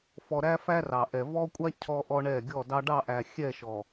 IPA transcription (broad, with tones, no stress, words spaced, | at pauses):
fɔ˨ ɾæ˦fæ˦rɑ˨ʔɛ˨ vɔ˦kʷʼa˦ cʰɔ˦ʔɔ˦ɳɛ˦˨ ɡʲɔ˦˨dɑ˦ ɖɑ˦˨ʔæ˨ xʲɛ˦˨ʃɔ˨